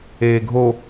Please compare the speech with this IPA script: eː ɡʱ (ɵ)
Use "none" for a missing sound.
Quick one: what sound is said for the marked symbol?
o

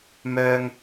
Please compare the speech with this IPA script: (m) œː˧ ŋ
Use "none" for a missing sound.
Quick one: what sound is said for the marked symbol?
m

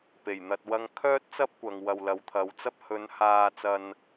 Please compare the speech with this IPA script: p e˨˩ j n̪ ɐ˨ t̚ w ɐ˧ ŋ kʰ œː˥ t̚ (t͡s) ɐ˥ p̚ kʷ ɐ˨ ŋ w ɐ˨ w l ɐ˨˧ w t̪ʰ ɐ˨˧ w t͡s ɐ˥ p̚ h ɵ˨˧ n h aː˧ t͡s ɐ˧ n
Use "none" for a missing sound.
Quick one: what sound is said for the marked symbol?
t͡s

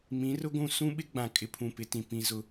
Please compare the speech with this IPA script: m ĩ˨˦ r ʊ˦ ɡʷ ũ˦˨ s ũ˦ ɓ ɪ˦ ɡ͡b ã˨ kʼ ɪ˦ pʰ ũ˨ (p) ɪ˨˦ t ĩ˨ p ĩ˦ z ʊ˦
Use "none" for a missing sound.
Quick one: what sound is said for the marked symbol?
p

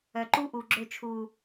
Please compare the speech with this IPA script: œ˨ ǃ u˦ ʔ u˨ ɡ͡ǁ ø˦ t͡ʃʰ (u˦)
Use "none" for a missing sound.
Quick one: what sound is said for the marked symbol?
uː˦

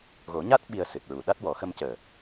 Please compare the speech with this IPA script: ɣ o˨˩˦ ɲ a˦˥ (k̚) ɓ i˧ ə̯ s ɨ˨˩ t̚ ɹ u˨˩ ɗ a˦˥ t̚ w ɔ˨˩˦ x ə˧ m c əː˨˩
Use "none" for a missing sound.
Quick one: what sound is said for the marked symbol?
t̚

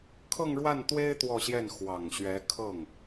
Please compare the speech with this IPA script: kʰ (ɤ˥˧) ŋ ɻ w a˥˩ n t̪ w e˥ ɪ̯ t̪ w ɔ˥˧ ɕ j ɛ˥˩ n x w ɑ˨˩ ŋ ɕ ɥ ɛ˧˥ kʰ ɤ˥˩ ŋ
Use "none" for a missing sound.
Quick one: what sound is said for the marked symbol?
ɤ˥˧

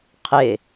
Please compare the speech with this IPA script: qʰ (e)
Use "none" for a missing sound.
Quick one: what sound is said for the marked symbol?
e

